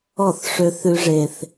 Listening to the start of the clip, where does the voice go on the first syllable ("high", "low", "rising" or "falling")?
falling